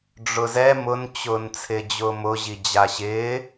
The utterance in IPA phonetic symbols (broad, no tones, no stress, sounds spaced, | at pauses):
ɖ͡ʐ ʊ z ɛ m ʊ n t͡ɕ ʊː n t͡sʰ ɪː d͡ʑ ʊː m ʊ ʑ i d͡ʑ a ɕ ɪː